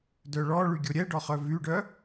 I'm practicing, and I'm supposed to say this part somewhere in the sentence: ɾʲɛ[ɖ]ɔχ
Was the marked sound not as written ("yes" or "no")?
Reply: no